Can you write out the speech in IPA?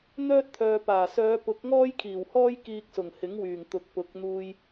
n̪ œː˥ t̚ t̪ʰ œː˨ p aː˨˩ s œː˨˧ p ʊ˨˥ k̚ ŋ ɔː˥ j kʰ iː˨˩ w h ɔː˥ j k iː˧ k̚ s ʊ˨˩ ŋ h ɪ˨˥ ŋ w yː˨˩ ŋ t̪ ʊ˨ k̚ p ʊ˨ k̚ n̪ uː˧ j

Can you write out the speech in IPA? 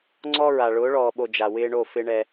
ŋ͡ǀ ɔ˦ ɹ a˨ ɭ ʊː˨˦ ɭ ɔː˨ ɓ o˨ d͡ʒ a˨ w ɪː˦ ɳ o˦˨ f ɪ˦ ɳ ɛ˦

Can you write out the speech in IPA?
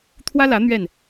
t̪ʰ w ä˦ l ä˨˦ n̪ ɥ ɛ˥˨ n

